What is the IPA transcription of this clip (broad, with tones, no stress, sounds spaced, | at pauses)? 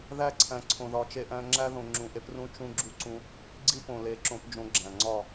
ð æ˦ ǀʰ æ̃˨ ǀʰ õ˨ ð ɒ˨ t͡ʃ e˦ ʔ æ̃˦ ŋ͡ǁ æ˦ ð õ˨ ŋ͡ǁ ũ˨ ʔ e˦ p r ũ˦ t͡ʃ ũ˦ ɡ͡ǁ u˦ ǀ ũ˦ | ɡ͡ǀ i˦ p õ˨ l e˨˦ ǁ õ˨˦ p d͡ʒ õ˨˦ ɡ͡ǁ æ̃˨ ŋ͡ǀ ɒ˦˨